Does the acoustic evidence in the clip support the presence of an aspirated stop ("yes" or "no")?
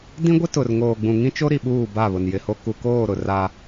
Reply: no